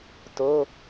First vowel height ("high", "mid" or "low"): mid